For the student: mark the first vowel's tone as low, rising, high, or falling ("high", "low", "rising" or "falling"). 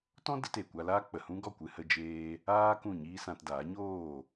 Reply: high